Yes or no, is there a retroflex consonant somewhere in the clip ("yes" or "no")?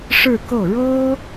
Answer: yes